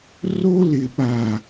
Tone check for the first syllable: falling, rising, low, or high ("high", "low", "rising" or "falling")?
high